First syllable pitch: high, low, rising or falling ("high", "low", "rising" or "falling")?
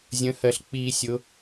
rising